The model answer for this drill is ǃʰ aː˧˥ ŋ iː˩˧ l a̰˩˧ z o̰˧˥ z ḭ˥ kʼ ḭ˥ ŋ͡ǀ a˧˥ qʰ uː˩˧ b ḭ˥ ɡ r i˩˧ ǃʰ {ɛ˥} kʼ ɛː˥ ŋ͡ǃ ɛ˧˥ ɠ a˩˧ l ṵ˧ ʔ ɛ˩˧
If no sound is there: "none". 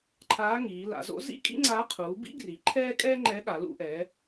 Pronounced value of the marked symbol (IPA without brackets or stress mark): ɛː˥